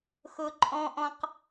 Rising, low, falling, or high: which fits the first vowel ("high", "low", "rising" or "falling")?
low